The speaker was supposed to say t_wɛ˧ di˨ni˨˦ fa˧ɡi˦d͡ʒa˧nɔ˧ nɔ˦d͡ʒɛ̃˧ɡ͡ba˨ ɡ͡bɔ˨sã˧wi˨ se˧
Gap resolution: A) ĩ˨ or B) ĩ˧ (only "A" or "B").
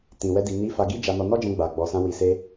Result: A